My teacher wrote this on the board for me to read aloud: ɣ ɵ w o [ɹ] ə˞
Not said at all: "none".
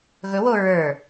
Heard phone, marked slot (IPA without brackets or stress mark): ɹ